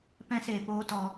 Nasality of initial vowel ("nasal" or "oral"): nasal